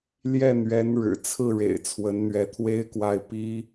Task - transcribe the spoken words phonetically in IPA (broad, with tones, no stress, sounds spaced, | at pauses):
l j ɛ˥˩ n̪ ɥ ɛ˧˥ n ɻ ɻ̩˨˩ t͡sʰ ɹ̩˥˩ ɻ ḛ˨˩ ɪ̯ t͡sʰ w ə˧˥ n n̪ ɥ ɛ˧˥ t̪ʰ w e˥ ɪ̯ k w a˥˩ ɪ̯ p i˥